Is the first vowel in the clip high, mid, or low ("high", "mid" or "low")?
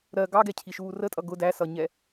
mid